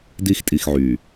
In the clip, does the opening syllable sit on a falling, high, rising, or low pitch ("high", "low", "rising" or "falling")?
high